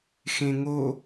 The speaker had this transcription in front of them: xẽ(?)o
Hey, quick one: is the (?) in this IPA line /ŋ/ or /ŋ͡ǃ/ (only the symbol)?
ŋ